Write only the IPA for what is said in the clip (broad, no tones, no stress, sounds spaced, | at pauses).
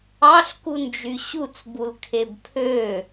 ɑ ɬ k u n d͡ʒ y ɕ u t͡s b u l kʰ e b pʰ ø